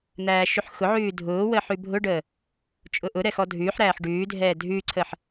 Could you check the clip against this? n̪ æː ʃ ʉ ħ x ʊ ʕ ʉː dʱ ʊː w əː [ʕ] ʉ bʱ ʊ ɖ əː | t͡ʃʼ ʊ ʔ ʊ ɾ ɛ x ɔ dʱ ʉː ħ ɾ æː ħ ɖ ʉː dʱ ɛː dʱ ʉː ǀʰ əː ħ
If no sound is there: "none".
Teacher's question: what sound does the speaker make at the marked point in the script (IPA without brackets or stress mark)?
ħ